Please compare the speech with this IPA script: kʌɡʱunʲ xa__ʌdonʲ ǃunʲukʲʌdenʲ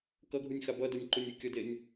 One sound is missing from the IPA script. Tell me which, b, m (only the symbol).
b